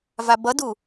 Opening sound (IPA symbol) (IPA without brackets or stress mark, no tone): v